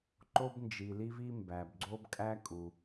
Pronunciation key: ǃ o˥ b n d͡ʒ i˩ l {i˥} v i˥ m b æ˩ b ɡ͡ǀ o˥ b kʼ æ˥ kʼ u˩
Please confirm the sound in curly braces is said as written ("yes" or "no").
yes